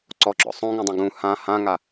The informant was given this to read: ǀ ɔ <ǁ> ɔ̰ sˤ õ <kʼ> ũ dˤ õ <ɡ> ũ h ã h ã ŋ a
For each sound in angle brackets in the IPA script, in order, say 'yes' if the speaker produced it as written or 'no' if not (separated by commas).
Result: yes, no, yes